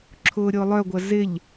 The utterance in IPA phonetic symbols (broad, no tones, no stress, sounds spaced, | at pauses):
ǁʰ ʊː ɾʲ ʊː lˠ œ ɡʷ ɐ z ɪ ʎ